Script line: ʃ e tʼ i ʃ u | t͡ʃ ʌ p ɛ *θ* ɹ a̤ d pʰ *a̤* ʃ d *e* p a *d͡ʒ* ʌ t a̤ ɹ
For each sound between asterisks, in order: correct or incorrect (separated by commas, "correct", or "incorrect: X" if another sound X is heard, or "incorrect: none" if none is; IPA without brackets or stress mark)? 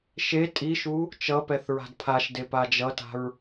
correct, incorrect: a, correct, correct